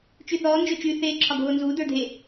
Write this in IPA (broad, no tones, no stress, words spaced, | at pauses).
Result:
t͡ʃyθɔː nd͡ʒot͡ʃy θeːǁʰɒɡʱoːnzuː də˞dʱe